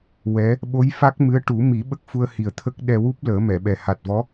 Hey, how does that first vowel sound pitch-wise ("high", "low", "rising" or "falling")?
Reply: rising